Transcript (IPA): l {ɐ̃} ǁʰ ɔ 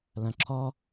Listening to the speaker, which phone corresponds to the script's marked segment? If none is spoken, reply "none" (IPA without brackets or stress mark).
ɐ̃